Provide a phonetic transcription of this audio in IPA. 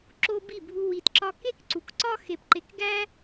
ǁ o˧ b i˦˨ bʱ u˧ w i˧ t ǁ ɒ˦ k e˦ k ǀ u˨ k ǀ ɒ˦ x e˧ p ǃ e˧ k ɡ æ˦

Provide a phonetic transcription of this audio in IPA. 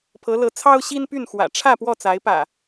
pʰ ɤ˨˦ l ɤ˨˦ t͡sʰ ɑ˦ ʊ̯ ɕ i˦ n p y˥˨ n x w ä̰˨˩ ʈ͡ʂʰ ä˥˨ p w ɔ˥˨ t͡s a˨˦ ɪ̯ p ä̰˨˩

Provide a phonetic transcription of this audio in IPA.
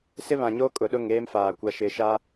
s ɪ˦ β ã˨ ɲ o˦ kʼ ʊ˨ ɗ ʊ˦˨ ŋ eː˦ m f aː˨ kʷ a˨ ʃ ɪ˨ ʃ a˦

